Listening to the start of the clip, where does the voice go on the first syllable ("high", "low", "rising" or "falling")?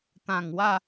low